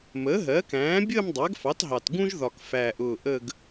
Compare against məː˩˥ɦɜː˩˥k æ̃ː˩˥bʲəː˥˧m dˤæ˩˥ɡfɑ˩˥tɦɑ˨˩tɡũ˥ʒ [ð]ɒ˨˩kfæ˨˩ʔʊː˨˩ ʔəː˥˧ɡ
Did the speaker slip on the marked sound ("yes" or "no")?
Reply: no